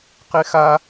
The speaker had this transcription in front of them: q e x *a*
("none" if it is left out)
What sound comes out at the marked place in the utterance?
a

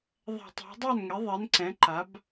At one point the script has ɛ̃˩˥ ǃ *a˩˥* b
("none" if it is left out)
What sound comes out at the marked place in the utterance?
a˩˥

